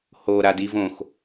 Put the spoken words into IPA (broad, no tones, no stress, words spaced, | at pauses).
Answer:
ho ɾadi võx